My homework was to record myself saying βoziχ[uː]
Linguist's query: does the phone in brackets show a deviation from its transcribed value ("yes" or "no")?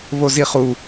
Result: yes